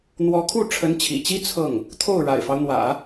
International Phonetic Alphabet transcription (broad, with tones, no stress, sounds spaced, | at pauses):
n̪ w ɔ˧˥ kʰ u˥˩ ʈ͡ʂʰ ə˧˥ n t͡ɕʰ ḭ˨˩ t͡ɕ i˥ t͡sʰ ɤ˥˩ ŋ | t̪ʰ o˥˩ ʊ̯ ɻ a̰˨˩ ɪ̯ f ɑ˦ ʊ̯ n̪ w ä̰˨˩˦